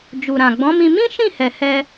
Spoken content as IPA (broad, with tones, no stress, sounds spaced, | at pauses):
d͡ʒ u˨ ɾ ã˨ ɡ͡b ɔ̃˨˦ m ĩ˧ m ĩ˦ ʃ ĩ˦˨ h ɛ˨ h ɛ˧